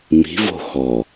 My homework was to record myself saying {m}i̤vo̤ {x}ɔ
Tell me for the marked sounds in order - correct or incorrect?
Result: correct, correct

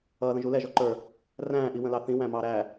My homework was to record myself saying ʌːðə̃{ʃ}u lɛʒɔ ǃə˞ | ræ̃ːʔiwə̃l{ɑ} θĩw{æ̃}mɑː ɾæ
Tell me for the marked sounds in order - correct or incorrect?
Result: incorrect: ʒ, correct, correct

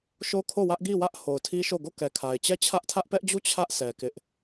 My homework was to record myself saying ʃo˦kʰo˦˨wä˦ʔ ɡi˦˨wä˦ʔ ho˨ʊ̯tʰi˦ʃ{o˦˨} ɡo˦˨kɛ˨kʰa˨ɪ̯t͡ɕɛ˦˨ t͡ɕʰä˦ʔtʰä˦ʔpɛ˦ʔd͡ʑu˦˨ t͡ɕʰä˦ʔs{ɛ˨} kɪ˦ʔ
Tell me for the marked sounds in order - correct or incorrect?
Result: correct, correct

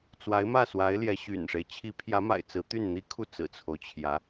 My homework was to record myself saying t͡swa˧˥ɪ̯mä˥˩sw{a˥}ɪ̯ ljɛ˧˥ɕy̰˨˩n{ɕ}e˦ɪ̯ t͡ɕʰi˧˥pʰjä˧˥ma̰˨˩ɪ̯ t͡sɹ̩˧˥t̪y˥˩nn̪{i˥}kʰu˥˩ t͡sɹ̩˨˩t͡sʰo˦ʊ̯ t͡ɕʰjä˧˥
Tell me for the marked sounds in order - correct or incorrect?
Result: incorrect: a˧˥, incorrect: ʂ, correct

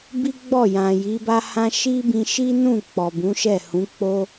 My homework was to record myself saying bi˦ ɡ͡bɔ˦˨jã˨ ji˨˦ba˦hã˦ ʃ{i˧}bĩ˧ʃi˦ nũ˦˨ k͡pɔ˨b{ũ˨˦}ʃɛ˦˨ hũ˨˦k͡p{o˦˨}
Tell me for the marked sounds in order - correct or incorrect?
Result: incorrect: i˦, correct, incorrect: o˦

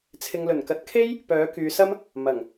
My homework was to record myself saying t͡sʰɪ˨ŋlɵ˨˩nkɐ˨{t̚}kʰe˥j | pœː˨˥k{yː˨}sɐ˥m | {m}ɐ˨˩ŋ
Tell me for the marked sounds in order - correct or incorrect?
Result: correct, correct, correct

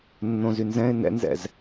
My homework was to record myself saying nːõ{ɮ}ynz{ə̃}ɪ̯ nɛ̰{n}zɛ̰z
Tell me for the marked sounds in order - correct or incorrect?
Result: incorrect: z, incorrect: ɛ̃, correct

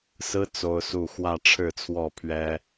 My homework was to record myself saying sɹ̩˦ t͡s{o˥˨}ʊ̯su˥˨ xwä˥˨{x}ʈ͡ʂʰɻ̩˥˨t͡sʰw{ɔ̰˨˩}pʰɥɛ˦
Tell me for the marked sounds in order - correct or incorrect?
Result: incorrect: o˦, incorrect: none, incorrect: ɔ˥˨

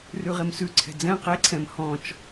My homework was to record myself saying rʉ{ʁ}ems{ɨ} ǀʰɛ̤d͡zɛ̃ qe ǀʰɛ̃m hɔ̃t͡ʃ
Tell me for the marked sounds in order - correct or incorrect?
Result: correct, incorrect: ʉ

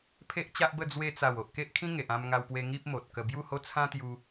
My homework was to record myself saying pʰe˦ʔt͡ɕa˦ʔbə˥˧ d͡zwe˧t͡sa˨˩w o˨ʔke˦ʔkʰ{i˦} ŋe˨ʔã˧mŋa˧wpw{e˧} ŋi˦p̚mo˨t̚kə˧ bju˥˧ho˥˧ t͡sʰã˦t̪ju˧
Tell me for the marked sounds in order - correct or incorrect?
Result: incorrect: ĩ˦, correct

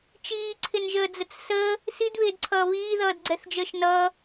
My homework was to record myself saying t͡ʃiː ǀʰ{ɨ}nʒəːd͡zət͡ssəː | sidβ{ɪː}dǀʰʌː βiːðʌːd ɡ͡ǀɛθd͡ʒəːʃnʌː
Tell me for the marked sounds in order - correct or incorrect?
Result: incorrect: ɪ, correct

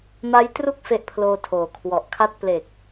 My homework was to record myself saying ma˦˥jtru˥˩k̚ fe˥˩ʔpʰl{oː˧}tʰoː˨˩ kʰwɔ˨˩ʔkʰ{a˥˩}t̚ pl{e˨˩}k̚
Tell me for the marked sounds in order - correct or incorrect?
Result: correct, incorrect: a˦˥, correct

